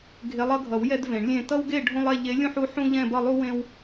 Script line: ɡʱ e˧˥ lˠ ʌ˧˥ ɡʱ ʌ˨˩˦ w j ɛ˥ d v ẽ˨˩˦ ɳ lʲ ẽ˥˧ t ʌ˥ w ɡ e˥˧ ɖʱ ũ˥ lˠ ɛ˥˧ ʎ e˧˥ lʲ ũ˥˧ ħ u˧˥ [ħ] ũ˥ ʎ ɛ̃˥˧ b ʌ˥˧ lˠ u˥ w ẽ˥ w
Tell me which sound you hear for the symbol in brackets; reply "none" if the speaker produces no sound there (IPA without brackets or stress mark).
ħ